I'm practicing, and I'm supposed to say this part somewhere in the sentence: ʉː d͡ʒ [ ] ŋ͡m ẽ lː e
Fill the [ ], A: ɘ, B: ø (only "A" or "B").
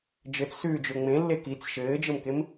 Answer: B